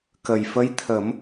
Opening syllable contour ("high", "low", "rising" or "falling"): low